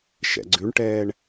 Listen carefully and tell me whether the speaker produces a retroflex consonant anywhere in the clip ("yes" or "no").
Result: yes